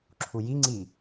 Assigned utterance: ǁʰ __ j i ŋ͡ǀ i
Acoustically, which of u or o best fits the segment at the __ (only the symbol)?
u